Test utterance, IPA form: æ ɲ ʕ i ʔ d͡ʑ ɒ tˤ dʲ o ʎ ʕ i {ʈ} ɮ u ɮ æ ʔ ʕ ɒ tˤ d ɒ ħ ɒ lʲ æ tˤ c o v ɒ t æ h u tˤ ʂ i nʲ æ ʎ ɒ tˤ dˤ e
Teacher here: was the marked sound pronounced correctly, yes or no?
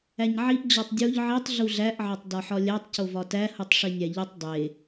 no